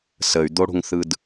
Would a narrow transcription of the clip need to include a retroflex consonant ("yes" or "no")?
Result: yes